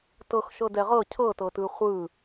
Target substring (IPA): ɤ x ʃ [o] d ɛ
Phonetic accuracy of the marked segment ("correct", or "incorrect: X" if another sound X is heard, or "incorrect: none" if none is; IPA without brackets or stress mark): incorrect: ɤ